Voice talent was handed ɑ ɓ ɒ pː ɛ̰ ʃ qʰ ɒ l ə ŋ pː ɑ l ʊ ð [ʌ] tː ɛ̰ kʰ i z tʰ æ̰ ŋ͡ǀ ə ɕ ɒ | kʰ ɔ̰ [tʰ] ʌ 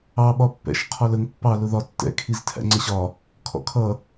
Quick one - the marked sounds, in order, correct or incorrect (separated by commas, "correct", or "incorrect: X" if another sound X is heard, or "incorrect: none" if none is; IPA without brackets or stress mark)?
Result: incorrect: ɒ, incorrect: kʰ